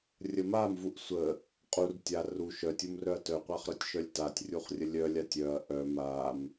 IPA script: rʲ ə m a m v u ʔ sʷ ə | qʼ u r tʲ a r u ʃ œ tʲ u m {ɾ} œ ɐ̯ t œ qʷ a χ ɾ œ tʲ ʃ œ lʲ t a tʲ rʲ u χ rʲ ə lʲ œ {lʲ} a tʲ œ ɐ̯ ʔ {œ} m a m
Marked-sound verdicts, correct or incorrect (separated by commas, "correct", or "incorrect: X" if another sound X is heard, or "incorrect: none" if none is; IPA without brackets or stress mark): incorrect: r, correct, correct